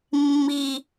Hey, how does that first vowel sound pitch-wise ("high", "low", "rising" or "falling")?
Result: low